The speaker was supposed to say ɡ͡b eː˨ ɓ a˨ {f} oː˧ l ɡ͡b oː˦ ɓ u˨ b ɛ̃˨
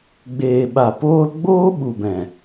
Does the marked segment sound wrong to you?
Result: yes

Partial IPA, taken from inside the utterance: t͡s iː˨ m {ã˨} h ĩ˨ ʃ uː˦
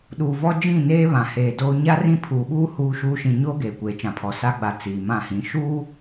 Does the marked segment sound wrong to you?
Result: yes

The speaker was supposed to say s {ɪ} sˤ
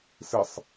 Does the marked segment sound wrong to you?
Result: no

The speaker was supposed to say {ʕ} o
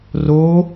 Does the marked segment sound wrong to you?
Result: yes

